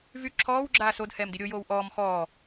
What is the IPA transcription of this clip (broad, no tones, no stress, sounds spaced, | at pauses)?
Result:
v y ǁʰ ɔː w ɡ͡ǁ aː s o d h ɛː m d i ɾʲ o j oː w ʔ ɔː m x ɔː